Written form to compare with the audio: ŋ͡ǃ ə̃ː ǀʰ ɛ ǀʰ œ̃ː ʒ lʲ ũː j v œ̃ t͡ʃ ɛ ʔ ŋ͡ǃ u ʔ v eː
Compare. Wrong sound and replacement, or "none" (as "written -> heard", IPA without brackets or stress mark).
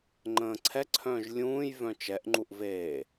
none